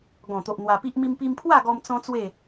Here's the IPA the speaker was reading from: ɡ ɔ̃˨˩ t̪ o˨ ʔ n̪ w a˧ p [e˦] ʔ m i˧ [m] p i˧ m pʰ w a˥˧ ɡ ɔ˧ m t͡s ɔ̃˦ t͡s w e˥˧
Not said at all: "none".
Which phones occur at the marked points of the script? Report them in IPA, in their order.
i˦, m

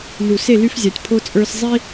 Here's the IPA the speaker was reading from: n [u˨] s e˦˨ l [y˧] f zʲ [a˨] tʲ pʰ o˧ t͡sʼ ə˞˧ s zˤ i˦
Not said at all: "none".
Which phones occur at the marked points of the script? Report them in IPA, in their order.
u˨, y˧, a˨

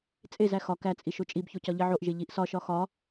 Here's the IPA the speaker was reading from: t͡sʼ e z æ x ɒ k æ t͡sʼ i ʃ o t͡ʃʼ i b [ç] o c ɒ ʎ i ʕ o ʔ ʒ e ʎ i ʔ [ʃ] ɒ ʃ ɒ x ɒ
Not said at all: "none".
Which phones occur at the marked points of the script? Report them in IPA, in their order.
ç, s

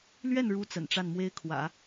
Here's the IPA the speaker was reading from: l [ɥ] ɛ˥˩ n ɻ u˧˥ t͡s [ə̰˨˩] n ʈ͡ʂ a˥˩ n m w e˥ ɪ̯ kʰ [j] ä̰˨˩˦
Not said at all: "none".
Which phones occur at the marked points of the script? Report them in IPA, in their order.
ɥ, ə̰˨˩, w

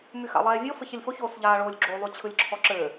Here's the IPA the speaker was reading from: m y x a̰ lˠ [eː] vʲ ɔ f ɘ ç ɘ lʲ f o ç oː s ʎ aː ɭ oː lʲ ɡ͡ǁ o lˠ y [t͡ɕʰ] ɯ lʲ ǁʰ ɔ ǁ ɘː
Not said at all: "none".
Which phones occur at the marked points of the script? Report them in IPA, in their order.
ɛː, t͡ɕʰ

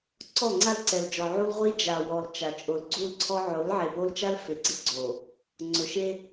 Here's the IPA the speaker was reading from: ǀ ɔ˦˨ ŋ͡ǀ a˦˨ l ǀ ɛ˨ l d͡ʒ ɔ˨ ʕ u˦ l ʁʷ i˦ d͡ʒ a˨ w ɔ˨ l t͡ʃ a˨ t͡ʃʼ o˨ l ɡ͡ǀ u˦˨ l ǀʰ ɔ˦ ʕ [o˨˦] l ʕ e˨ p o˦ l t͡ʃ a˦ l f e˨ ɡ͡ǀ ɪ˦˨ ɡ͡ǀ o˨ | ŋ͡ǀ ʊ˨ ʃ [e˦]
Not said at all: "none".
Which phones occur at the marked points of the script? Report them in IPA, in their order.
o˨˦, e˦

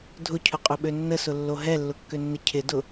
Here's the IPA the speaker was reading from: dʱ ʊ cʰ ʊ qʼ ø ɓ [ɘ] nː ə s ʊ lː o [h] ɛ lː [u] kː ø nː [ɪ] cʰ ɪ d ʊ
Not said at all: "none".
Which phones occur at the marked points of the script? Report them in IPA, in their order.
ø, ɦ, ʊ, ɪ

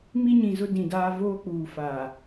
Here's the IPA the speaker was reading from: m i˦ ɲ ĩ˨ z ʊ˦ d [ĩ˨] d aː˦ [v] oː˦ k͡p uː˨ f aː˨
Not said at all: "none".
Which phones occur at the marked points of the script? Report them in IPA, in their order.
ĩ˨, v

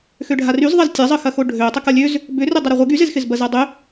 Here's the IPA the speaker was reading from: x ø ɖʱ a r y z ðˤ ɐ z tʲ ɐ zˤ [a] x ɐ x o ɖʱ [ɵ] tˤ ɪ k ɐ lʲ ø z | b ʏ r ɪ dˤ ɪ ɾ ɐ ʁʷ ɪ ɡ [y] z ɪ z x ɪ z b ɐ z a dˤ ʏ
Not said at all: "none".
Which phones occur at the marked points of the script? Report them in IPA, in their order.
ə, ø, y

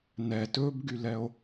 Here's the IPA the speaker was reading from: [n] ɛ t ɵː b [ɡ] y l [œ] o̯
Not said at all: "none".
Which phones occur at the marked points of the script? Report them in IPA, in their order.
n, ɡ, ɛ

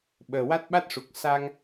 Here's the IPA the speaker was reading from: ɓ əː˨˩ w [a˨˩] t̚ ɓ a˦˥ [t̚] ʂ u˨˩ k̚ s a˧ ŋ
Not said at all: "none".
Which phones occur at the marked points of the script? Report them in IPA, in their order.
a˦˥, t̚

